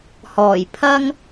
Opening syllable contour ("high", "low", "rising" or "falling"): low